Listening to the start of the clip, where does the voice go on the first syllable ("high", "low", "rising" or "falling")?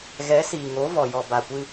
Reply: rising